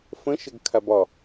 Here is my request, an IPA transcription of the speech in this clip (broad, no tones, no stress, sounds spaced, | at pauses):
f ə̃ ʃ ə ɡ kʰ a b ɒ